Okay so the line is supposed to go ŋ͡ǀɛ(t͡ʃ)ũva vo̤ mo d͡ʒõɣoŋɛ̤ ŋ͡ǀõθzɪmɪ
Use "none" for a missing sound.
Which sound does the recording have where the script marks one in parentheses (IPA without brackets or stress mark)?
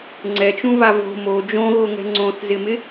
t͡ʃ